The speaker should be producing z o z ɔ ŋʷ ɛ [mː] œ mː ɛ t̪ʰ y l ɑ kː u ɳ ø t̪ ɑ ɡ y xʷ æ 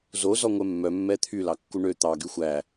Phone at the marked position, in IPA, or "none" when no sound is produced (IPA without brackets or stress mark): mː